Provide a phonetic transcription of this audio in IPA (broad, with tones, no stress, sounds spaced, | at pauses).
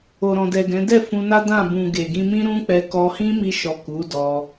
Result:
o˨ ɾ ɔ̃˨ d ɛ˨ ɡ ɛ̃˨˦ d ɛ˦˨ f ũ˧ n a˦ d ã˦˨ b ũ˨ ɡ e˨ ɡ ĩ˧ m ĩ˦ ɾ ũ˦ k͡p ɛ˧ k ɔ˧ h ĩ˦ m i˧ ʃ ɔ˨ k u˨˦ d ɔ˧